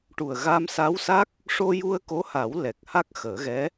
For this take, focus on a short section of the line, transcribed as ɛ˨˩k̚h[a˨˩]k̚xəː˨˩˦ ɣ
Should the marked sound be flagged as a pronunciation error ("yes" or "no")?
yes